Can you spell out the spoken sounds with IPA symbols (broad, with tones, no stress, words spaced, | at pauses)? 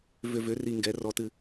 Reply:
vʏ˧˩˧vʏ˩˥ ri˧ŋɡɛ˩˥rɔ˧tɨ˧